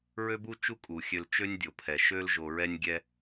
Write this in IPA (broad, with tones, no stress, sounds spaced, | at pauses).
ɹ ø˥ b u˥ t͡ʃ u˥ kʼ u˩ xʲ ø˨ l t͡ʃ ø˦ nʲ dʲ o˩ pʰ ɛ˩ ʃ ø˥ l ʒ o˨ ɹ ɛ˥ nʲ ɡʲ ɛ˥